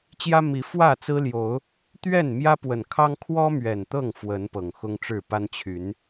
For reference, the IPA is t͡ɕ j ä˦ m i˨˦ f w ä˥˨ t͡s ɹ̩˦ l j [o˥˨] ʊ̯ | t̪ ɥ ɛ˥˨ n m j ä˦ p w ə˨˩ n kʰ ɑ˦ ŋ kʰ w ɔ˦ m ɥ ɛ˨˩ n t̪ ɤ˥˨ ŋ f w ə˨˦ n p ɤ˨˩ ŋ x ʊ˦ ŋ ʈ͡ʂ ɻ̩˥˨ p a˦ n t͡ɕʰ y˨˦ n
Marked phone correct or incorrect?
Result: incorrect